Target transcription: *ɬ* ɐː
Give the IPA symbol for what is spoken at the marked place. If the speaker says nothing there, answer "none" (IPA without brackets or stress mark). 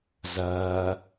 z